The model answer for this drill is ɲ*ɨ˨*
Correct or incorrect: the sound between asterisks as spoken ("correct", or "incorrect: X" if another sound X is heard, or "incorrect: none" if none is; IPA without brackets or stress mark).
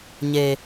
incorrect: e˨